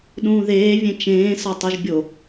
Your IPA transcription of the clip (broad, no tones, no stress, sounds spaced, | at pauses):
ɗ ũː ð eː vʲ ẽ t͡ʃ ẽː s ɒ tˤ u ʒ bʲ o